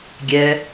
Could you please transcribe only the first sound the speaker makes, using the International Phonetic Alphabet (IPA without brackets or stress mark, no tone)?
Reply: ɡʲ